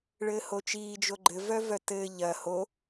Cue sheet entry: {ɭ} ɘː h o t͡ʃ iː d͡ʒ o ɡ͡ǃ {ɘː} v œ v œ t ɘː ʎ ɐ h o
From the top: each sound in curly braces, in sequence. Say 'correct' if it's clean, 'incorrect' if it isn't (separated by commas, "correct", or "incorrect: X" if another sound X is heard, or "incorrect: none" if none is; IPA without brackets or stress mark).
correct, incorrect: ɘ